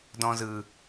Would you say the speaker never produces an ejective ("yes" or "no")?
yes